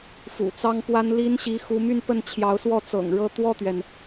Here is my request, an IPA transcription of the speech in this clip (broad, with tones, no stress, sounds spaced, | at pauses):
f ṵ˨˩ t͡s ɑ˥ ŋ p w a˥ n l i˥ n ɕ i˧˥ x u˧˥ m y˥˧ n p ə˥˩ n t͡ɕʰ j ɑ˧˥ ʊ̯ s w ɔ˥˩ t͡s ɤ̰˨˩ ŋ ɻ ɤ˥˧ t̪ w ɔ˥˩ t̪ ɥ ɛ˩ n